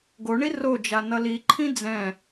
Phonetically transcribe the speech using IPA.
ɡ o ɳ i r o d͡ʒ a n ʌ l i ǃʰ ĩ d͡z ɛ̃

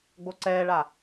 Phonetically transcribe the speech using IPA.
ɡ͡b o ǀ ɛː ɭ a

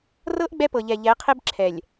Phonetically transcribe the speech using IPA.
r ɤ˦ ʔ ɡ͡b ɛ˦ p ɤ˨ ʎ ɛ˨ ʎ ɛ˨˦ qʰ e˦ b ǁʰ ɛ˨ lʲ

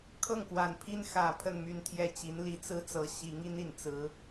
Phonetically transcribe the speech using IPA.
kʰ ɤ˥˩ ŋ k w a˨˩ n pʰ i˥ n x ä˨˩ pʰ ə˥˧ n m y˥˧ n t̪ʰ j ɛ˥˩ t͡ɕ i˧˥ n l i˧˥ t͡s ɹ̩˥ t͡s ɤ˧˥ ɕ i˧˥ ŋ i˥ n i˨˩ n t͡s ɹ̩˧˥

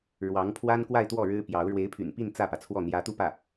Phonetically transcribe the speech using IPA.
ɻ w ɑ˧˥ ŋ pʰ w a˥ n k w a˥˧ ɪ̯ t̪ w ɔ˥˩ ɻ ɻ̩˥ p j ɑ˧˥ ʊ̯ ɻ w e˧˥ ɪ̯ pʰ y̰˨˩ n p i˥˧ n t͡s ä˥˩ p ä˩ t͡sʰ w ɔ˥˩ n̪ j ä˧˥ t̪ u˥˧ p ä˥˩

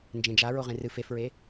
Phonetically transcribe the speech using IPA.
n d͡ʒ ẽ d͡ʒ a ɹ o ʁ ẽ r ɨ f e f ɹ e

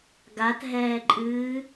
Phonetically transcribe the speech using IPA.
ɡ a t ɦ ɛː ǃʼ ɨː

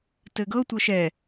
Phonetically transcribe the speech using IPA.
t ɘ ɡ ɤ tʷ ɤ ʃ ɛ

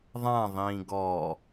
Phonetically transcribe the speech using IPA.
ðˤ ã ðˤ ĩː ɡ ɔ

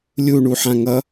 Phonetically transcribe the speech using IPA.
lʲ u ɳ u ħ ã ŋ ʌ

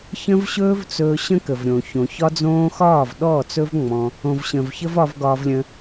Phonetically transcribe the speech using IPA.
ç ə̃˦ v ɕ ɵː˦ v t͡s ɵː˧ ɕ ə̃˦ k ə˨ v ɾʲ õ˨ ç õ˨ ç ɒ˦ d͡z õː˦ x ɒː˦˨ v ɗ ɔː˦˨ t͡s ɵ˦ v ŋ͡m ɔ̃˧ | õ˨ v ɕ ə̃˨ v ç ə˦ v ɒ˧ v ɡ ɒː˧ v lʲ ə̃˧

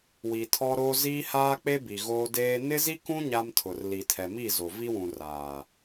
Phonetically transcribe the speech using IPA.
w i˨ tʰ ɔ˦ ɾ o˦ z iː˦ h aː˦ k͡p e˦ b i˨ ɣ oː˦ d eː˦ n ɪ˦ z i˦ k ũ˦ ɲ a˦ m tʰ ʊ˨ r l i˨ tʰ ɛ˨ m i˦˨ z o˨ v i˦ w ũ˨ r aː˨

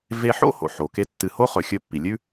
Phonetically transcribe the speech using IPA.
v e˧ ħ o̰˥ h o̰˩ ħ o˩ k e˥ tː ɨ˧ h o˥ χ ɵ˩ xʲ ɵ˧ pː i˩ lʲ ʉ˥

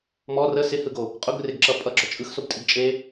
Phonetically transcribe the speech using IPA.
m ɔ r ə s ɪ h ɯ ɡ o | qʼ ʊ ɡ r ɪ ɡ ǁ ʌ pʼ ʌ ɡ͡ǁ ɔ t͡ʃʼ ɯ x s o b tʼ i ɡ t͡ʃʼ e

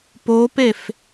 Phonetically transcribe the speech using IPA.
p o p e f

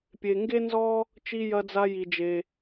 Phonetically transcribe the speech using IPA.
pʲ e˩ ŋ ɡ e˦ n z ɔ˦ | t͡ʃ i˨ j ɐ˨ d͡z a˨ j i˩ d͡ʒ e˩

